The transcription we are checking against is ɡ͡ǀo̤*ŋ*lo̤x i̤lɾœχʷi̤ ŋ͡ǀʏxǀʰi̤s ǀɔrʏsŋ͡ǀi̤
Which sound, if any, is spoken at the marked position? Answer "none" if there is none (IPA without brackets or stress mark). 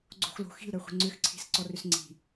x